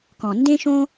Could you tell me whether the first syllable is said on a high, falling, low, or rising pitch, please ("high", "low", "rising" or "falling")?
low